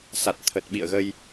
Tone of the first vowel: low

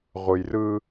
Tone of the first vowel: low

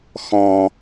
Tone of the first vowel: low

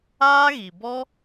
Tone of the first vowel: high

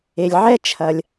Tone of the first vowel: low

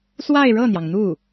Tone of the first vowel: falling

